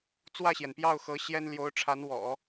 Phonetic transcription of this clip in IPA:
t͡s w ä˥˩ ɕ j ɛ˩ n p j ɑ˥˩ ʊ̯ x ɤ˧˥ ɕ j ɛ˥ n l j o˧˥ ʊ̯ ʈ͡ʂʰ a˧˥ n w ɔ̰˨˩˦

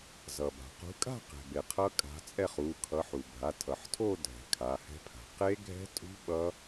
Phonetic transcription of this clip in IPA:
z ʌ˩ b a̤˩ q ṳ˨˦ kʼ a̤˥˧ q ɛ̤˩ b e˩ qʰ ʌ˦˥ kʼ a̤˨˦ t͡sʼ ɛ˥˧ χ u˩˧˩ kʰ ʌ˨˦ ħ u˩ bʱ a˩˧˩ tʰ ʌ˩ ħ tʰ o˥˧ dʱ ɛ̤˩ kʰ a˩˧˩ h ɛ̤˦˥ pʰ a̤˩ q e˦˥ ɡʱ ɛ̤˦˥ tʼ ṳ˦˥ ɓ ʌ˦˥

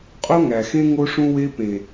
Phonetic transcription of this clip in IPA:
qʼ o˦ ŋ æ˨ x ẽ˦ ŋ o˦ ʂ ũ˦ w e˦ p ẽ˨

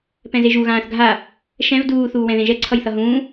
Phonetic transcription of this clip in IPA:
p ɛ̃ z e ʒ u ɣ ãː θ ɡʱ a | ʃ ɛ̃ v d uː θ uː w ɛ̃ ð ẽ ʒ ɛ ǀʰ ʌ j θ ʌ ɦ ũː

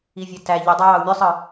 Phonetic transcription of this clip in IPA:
i vʲ æ t æ ʎ y dˤ æ j ɑ u̯ mʲ ø sˤ ɯ

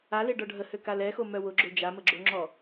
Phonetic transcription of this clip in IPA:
a l e ɖ ɔ ɖʱ ə h ø k a l ɛ x o m œ w ʊ ɡ͡ǁ o d͡ʒ a m ə ɡ͡ǁ o ŋ͡ǁ ɔ

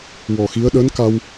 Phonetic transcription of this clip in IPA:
w ɔ˨˩ x i˧˥ ə̯ ɗ əː˧˥ n k a˧ w

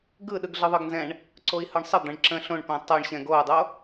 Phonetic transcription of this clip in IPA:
ɡ ɯ ɗ ɯ ɡ ɮ ɯ ðˤ ɯ ɡ n z ɛ̃ ɳ | ǀ o i̯ h ɯ ɳ sˤ ə d̪ ə̃ ɳ ǁ ə̃ ɬ õ ɳ p ɛ̃ tˤ o ɳ ɕ ɛ̃ ɡ o u̯ dˤ o

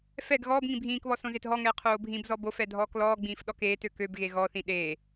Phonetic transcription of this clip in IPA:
f ɛ ɡ ɣ ɔː b ŋ ĩ bʱ ĩː k β ɔ s õ z e t ɦ ɔ ŋ ɛː qʰ oː bʱ ĩ b z ɔ b o f ɛ dʱ ɔː k l ɔː ɡ͡b ĩː f ɗ ɔ k eː t ø k ø b ɣ e ɣ ɔ θ ĩ ɗ eː

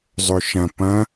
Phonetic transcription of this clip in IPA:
zˤ ɵ ʃ ɐ̃ p ɐ̃

